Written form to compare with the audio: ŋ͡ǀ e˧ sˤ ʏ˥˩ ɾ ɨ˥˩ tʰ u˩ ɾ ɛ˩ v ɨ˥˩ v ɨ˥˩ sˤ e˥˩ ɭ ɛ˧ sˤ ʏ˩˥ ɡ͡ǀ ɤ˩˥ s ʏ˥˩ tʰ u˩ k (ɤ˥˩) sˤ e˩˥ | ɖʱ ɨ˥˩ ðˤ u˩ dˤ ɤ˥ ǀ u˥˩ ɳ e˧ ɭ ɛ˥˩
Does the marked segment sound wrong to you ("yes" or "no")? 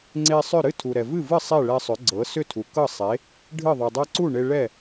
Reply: no